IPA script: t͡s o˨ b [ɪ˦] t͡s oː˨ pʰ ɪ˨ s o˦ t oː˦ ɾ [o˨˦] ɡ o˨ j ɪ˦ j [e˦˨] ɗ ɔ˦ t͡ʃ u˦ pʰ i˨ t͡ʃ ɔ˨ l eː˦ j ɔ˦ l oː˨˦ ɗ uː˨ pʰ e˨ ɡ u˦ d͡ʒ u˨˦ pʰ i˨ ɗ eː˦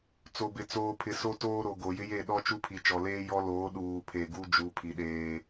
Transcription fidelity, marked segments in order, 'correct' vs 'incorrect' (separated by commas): incorrect, incorrect, correct